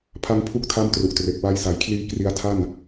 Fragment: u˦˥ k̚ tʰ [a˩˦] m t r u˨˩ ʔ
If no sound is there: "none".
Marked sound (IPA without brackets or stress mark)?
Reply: a˥˩